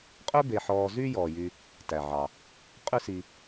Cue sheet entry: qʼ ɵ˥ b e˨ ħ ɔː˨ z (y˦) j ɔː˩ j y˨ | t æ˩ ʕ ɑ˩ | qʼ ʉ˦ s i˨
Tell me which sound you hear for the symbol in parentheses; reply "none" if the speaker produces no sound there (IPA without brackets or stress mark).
y˦